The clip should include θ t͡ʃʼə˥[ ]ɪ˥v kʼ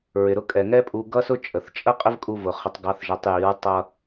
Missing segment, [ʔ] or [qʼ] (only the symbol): qʼ